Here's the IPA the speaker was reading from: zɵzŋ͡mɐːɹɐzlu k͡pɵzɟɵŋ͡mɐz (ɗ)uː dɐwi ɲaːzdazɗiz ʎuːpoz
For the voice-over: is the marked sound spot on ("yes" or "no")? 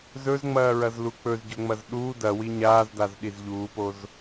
yes